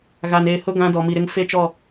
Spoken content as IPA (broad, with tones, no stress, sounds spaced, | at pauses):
ɣ a˨ n eː˨ h ʊ˦ ɡ ã˦ d ɔ˨ m i˨ ɾ ɪ˦ ŋ f e˦ t͡ʃ ɔ˦˨